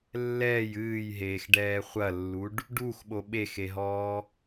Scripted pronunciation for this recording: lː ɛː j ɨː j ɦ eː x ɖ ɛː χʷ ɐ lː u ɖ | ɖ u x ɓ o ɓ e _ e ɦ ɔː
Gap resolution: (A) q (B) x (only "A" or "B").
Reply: B